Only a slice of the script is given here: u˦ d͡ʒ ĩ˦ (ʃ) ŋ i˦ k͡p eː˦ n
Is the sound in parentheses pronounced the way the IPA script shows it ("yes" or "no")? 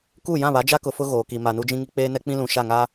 no